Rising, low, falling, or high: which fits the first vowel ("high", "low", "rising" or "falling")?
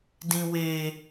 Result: low